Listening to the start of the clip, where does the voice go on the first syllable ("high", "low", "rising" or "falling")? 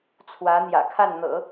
rising